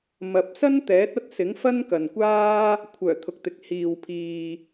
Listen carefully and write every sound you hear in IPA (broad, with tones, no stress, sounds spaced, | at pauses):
m ɐ˨ p̚ s ɐ˥ n t̪ ɛː˨˥ t̚ ɐ˥ t̚ s ɪ˨˥ ŋ f ɐ˥ n k ɐ˨ n kʷ aː˥ | kʷʰ œː˨˩ t̪ʰ ʊ˨ k̚ t̪ ɪ˨ k̚ h iː˨ w pʰ iː˨